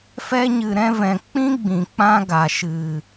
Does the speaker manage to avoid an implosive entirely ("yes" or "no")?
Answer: yes